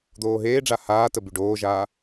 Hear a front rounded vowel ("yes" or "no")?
yes